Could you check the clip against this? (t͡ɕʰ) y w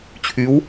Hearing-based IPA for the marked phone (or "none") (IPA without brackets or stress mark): t͡ɕʰ